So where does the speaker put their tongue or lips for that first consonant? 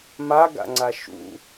lips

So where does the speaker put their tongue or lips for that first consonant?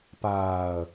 lips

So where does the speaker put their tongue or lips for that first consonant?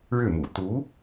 retroflex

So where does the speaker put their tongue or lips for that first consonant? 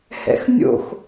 throat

